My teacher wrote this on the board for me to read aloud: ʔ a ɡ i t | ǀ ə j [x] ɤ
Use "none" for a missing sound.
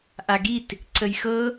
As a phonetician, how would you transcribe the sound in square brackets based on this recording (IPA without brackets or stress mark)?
x